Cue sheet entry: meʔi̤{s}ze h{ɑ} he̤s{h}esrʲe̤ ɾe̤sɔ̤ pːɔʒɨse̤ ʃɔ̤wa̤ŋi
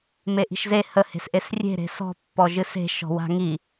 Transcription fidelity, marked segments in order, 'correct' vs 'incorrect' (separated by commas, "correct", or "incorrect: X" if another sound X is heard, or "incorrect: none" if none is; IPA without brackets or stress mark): incorrect: ʃ, incorrect: ə, incorrect: ʔ